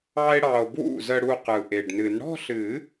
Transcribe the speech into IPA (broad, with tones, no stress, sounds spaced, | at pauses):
ɑ˥ e̯ ɽ ɑ˧ o̯ b w ṵ˥˩ z ə˧ ɽ u˧ q ɯ˨˩ ʔ e˨˩ ɖ n ɨ˨˩˦ n ɽ ɔ̤˥˧ ɬ ɨ˨˩˦